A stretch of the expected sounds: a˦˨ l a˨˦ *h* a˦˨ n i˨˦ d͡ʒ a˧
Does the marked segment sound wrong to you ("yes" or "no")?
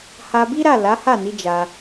no